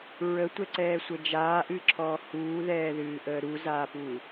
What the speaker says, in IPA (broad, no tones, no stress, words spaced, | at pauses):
ɹətʷɛǀɛːsʷə d͡ʒaːʔɨːǁʰɔː huːðɛːðɨːʔəː ɾuzaːpu